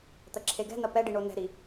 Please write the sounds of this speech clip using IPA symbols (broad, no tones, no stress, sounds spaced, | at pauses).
t̪ ɐ ǁʰ e ɡ ɛ̤ n ɐ p ɛ ɖ i ɳ o n ɛ̤ ɾ i